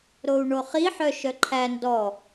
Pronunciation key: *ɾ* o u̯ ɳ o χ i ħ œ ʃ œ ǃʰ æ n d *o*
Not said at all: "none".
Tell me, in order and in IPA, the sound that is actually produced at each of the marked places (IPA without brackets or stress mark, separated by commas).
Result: ɾ, ɔ